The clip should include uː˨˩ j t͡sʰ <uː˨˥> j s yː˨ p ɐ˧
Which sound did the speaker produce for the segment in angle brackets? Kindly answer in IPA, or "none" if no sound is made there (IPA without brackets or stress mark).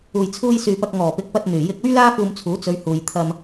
uː˧